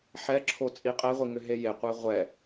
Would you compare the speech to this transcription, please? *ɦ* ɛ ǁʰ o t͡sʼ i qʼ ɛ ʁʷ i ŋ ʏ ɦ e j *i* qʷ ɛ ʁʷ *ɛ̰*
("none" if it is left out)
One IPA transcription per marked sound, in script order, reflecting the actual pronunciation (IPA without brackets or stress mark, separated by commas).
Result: ħ, e, ɛ